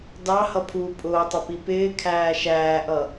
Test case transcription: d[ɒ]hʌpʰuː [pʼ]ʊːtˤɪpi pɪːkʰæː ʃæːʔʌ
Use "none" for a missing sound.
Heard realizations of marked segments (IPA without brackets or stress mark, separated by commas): ɑ, pʼ